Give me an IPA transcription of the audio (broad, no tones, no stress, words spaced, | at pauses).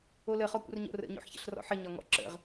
oləχɔ kʷə̰rɲo̰rə̰ɲo̰ħ çə̰ɬrɔ̰ħə ɲɒŋɔ̰ǁə̰ʁ